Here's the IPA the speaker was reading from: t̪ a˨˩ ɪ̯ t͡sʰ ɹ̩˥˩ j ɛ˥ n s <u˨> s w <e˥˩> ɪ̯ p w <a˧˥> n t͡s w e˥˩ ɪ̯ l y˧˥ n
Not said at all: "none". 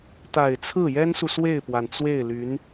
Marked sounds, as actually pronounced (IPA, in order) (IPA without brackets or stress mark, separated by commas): u˨, e˥˩, a˩